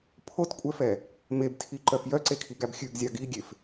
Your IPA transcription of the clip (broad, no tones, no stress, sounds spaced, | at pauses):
pʰ o t kʷʼ ɛ f ɛ | m e b tʰ i ǃ œ f j œ ǀ e kʰ i ɡ æ b xʲ ʉ ɡ zʲ ɑ ɡ i ɡʲ e f